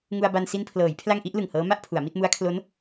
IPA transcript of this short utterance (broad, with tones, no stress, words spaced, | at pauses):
ŋu˧a̯ba˧n si˧npʰlɤː˩˦j pʰla˥˩ŋʔi˦˥ʔlɯ˨˩ŋhɤː˦˥ ma˥˩ʔpʰu˩˦a̯mi˥˩t̚mu˦˥a̯ kʰlo˦˥n